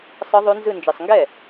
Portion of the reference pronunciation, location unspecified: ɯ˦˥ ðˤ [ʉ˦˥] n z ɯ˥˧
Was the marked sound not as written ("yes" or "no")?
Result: no